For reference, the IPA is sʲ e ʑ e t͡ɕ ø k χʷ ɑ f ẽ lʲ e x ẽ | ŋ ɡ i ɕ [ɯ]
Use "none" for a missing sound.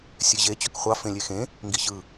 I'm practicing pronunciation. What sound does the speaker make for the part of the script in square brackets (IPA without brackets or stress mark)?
ɯ